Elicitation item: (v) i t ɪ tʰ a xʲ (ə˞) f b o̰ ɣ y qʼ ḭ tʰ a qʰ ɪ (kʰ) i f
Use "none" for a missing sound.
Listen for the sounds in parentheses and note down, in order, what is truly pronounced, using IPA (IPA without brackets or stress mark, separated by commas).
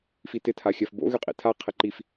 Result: f, ɜ, ǃ